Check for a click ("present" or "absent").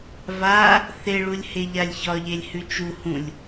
absent